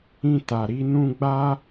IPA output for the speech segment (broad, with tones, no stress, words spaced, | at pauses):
ĩ˧ta˨ɾi˨˦ nũ˧ ɡ͡ba˦